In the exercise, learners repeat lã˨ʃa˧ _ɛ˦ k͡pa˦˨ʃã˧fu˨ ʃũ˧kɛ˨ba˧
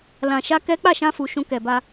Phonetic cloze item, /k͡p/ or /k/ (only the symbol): k